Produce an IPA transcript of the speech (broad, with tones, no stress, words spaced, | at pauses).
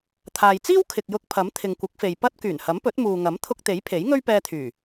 t̪ʰaː˨jt͡siː˥w kʰɪ˨k̚jʊ˧k̚pʰɐ˨˥m t̪ʰɪ˨ŋkʷɪ˨˥k̚fe˨j pɐ˥t̚ kyː˨˩nhɐ˨˥mpɵ˨˥t̚ muː˨ŋɐ˨˥m t̪ʰʊ˧k̚t̪e˨˥jpʰe˨˥j ŋɵ˥ɥpɛː˧t̪ʰyː˨˩